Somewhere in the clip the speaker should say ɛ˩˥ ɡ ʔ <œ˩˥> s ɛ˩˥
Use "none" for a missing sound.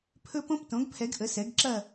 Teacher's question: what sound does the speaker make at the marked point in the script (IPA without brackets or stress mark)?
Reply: ə˩˥